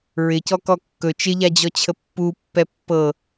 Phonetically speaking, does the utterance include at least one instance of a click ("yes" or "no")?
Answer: no